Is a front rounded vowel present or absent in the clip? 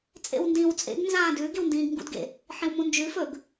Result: absent